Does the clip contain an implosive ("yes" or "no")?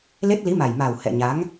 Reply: no